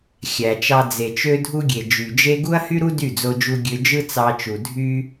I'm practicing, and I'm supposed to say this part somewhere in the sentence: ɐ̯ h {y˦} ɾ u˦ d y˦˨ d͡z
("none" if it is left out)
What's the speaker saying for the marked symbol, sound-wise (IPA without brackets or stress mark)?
y˦